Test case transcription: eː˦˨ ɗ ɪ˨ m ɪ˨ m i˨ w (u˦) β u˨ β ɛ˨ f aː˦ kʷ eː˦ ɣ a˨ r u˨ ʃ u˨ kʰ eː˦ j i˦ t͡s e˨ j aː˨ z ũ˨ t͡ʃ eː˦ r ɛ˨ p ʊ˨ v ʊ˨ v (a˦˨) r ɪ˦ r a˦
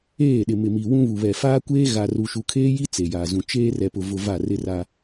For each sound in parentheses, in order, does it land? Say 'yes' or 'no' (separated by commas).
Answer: no, yes